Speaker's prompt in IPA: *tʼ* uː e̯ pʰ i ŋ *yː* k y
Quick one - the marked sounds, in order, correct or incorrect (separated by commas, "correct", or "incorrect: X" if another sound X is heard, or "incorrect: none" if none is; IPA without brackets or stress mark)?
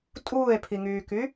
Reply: correct, correct